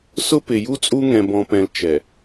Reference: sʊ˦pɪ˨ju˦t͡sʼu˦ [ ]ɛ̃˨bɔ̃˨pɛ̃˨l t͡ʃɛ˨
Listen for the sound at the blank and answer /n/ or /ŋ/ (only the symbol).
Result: ŋ